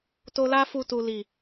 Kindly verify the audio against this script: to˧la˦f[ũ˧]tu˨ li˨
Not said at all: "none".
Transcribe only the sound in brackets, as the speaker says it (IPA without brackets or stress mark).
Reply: u˧